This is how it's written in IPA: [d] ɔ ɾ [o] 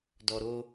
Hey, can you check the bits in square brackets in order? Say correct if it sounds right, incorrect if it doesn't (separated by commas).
correct, correct